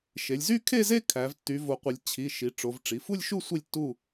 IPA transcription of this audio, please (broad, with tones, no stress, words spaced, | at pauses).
ʃe˩˧lʲzy˥˧ kʰe˥˧ze˥˧ kʰæ˩˧v tːy˩˧vo˩˧qʷɯ˩˧lʲ t͡ɕʰi˩˧˩ ʃi˩˧ʈ͡ʂo˩˧v ʈ͡ʂi˩˧˩fu˥˧lʲʃu˥˧ sʷi˥˧lʲtːu˥˧